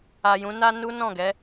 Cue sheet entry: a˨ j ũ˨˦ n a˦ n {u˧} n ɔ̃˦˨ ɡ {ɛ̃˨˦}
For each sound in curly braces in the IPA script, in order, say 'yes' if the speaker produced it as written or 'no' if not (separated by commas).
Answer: no, no